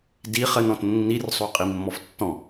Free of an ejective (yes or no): no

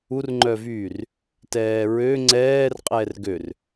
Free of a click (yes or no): no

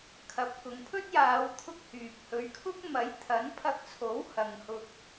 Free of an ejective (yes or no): yes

